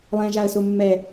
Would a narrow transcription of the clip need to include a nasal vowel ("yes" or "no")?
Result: yes